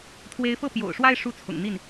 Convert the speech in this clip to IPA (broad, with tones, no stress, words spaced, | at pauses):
t̪ʰwe˧˥ɪ̯fɤ˥˩pjo̰˨˩ʊ̯ʂwa˥˧ɪ̯ ʂu˥˩t͡sʰʊ̰˨˩ŋn̪i˥˩n